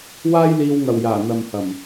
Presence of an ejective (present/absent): absent